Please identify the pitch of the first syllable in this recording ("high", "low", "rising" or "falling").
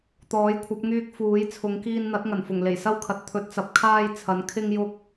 rising